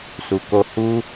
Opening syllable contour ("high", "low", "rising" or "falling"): low